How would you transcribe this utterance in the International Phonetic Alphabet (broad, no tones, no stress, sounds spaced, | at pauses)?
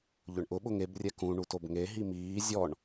ʎ ʊ ɳ ʔ ʊ ɓ ʊ ŋ e b rʲ ɛ k ũ ɳ u t o b ŋ e ɦ i m iː zʲ ɔ ɳ